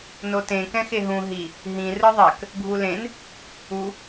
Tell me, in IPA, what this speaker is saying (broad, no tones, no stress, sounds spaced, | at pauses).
n o t ẽ k ɛ̃ x e ɦ ũ ɦ i | ɦ ĩ r ɯ ðˤ ɛ k | ɡʱ u l ẽ n | u